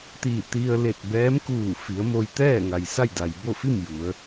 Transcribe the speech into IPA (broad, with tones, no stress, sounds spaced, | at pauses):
t̪ i˧˩ t̪ i˧ ə̯ l e˧˩ t̚ b ɛː˧˥ m k uː˧˩ f i˩˧ ə̯ m o˧ j t̪ ɛː˥˨ ŋ a˩ j s a˥˨ j d a˩ j b o˥˨ f i˥˨ m j u˩˧ ə̯